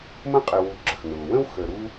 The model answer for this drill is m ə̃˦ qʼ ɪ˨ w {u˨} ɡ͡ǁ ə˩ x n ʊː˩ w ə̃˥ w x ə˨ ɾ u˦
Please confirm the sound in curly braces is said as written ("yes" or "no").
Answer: yes